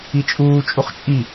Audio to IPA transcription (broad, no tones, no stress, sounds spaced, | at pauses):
i t͡ʃʼ uː t͡ʃʼ u χ t͡ʃʼ i